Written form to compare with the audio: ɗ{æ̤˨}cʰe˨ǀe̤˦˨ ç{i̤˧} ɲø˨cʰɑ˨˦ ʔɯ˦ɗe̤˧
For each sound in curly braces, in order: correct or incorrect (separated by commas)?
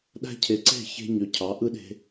incorrect, incorrect